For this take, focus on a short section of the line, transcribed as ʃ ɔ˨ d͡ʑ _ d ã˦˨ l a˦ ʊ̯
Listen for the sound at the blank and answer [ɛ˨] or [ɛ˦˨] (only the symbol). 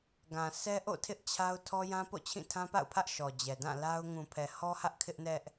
ɛ˨